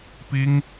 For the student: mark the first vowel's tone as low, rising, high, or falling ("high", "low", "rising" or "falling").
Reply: high